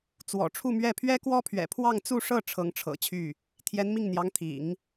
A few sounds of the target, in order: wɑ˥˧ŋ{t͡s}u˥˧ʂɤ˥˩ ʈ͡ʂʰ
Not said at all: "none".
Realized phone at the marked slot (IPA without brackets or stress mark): t͡s